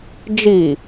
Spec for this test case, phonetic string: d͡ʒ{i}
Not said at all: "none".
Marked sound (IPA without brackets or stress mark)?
i